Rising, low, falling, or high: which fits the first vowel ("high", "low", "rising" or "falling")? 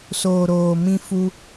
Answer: low